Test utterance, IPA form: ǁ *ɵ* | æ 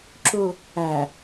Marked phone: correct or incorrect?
incorrect